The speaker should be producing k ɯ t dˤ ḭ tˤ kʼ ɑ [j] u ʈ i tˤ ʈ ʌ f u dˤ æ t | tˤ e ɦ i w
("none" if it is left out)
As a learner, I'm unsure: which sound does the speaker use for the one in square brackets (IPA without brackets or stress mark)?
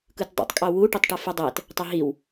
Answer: w